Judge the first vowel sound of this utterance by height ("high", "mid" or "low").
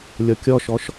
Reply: mid